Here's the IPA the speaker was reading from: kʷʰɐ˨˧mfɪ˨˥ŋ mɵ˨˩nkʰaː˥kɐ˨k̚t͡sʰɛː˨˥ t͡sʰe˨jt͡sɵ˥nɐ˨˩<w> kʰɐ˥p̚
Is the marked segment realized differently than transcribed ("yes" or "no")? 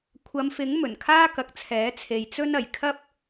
yes